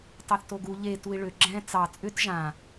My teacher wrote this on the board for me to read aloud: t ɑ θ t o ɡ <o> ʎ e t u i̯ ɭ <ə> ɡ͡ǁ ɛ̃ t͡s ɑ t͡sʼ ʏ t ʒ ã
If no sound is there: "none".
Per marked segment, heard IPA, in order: u, ʏ

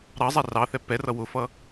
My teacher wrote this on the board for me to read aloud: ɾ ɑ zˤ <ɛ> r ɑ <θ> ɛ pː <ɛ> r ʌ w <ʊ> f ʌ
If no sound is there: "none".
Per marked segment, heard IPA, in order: ɛ, θ, ɛ, ʊ

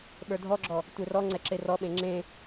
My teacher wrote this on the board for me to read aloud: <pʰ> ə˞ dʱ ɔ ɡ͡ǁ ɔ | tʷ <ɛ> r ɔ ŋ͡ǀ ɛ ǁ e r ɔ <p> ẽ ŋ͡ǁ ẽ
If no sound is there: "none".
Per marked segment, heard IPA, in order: ɓ, e, ɓ

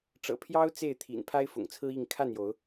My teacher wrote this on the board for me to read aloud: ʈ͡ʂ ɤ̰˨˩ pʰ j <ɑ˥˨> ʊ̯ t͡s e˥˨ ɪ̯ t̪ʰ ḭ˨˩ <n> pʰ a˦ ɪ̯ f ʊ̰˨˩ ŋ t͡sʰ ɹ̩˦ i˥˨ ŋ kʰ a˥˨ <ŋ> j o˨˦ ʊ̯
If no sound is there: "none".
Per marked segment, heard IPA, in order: ɑ˦, n, n

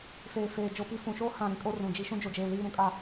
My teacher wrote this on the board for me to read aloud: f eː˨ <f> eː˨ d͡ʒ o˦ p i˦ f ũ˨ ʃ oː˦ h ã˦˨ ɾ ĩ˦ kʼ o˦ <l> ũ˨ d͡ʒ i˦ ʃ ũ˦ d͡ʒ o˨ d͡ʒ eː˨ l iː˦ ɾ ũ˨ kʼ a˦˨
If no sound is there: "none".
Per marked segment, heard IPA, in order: f, r

